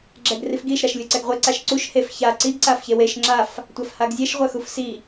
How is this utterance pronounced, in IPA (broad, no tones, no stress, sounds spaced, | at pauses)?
ɡ͡ǁ ɛ ɡ r i f ɡ i ʃ ɾ a ʃ lʲ u ǀ ɛ ɡ ʁʷ e ǀ a ʃ ǀ u ʃ h e f ç a ǀ i ɡ ǀ a f ç e w e ʃ ŋ͡ǁ a f | tʷ a f h a ɡ zʲ ɛ ʃ ʁʷ ɛ x u f s i